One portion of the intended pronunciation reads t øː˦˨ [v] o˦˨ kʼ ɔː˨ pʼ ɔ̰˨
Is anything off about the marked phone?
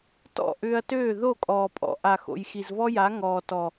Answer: yes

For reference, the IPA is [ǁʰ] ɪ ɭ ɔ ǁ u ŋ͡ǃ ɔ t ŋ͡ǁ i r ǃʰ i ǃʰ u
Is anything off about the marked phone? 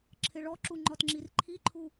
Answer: no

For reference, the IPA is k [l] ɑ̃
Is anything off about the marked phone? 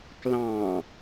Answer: no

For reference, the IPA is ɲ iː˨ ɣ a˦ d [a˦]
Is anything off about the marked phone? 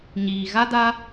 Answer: no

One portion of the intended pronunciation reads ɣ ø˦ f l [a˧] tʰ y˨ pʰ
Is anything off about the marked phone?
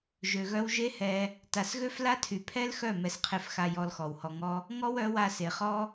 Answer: yes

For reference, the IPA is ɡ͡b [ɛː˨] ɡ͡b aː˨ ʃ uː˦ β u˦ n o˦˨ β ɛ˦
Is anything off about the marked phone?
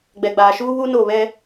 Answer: yes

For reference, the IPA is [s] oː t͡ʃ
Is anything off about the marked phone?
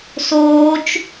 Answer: no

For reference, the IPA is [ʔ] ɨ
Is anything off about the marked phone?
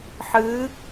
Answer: yes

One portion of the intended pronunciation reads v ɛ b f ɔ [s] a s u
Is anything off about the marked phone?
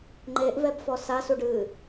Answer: no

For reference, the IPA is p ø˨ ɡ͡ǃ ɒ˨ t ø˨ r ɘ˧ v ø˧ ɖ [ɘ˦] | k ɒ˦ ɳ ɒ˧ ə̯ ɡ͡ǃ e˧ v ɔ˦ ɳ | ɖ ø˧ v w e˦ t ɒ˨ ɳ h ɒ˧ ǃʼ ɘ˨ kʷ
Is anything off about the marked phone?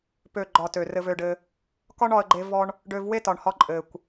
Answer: yes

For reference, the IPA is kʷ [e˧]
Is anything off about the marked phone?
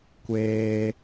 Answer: yes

